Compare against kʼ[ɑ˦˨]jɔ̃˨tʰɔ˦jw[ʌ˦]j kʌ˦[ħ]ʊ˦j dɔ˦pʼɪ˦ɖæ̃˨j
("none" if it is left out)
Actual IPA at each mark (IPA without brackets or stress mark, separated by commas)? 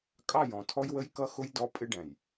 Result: ɑ˦˨, ə˦, x